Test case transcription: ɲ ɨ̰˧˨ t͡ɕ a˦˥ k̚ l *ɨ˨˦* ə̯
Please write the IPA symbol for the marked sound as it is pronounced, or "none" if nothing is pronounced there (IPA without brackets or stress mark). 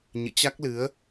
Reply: ɨ˨˦